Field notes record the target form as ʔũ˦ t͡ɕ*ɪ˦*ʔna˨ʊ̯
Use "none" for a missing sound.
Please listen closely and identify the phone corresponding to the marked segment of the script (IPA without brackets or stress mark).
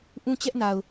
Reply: ɛ˦